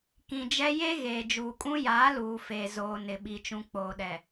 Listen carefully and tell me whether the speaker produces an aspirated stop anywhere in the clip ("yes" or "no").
no